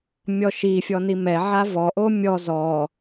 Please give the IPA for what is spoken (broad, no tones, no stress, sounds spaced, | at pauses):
mʲ ɔ ʃ i fʲ ɔ n i m ɛ ʕ a v ɔ ʔ o mʲ ɔ z ɔ